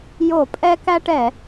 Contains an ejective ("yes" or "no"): yes